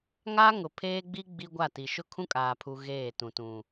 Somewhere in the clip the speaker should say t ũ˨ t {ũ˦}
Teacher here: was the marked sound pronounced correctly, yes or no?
no